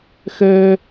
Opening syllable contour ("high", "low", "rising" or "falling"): high